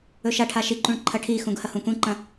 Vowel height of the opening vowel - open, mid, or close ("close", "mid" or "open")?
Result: mid